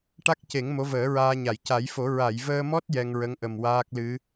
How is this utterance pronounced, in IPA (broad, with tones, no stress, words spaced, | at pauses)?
ʈa˦˥k̚ ce˨˩˦ŋ mo˧˥vəː˨˩˦ɹaː˧ɲa˨˩˨j ca˨˩˦jfo˨˩˦ ɹa˨˩˨jvəː˧mɔ˦˥t̚ jɛ˧ŋɹə˧˥ŋʔə˨˩m waː˦˥k̚lɨ˧˥